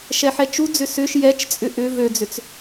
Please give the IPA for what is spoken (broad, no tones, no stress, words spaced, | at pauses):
ʃɛħɛt͡ʃud͡zʏ sʏʃ jɛt͡ʃt͡sʼʏ ʔʏ vød͡zʏt͡s